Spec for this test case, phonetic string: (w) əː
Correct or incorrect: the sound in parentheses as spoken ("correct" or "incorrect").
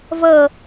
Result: incorrect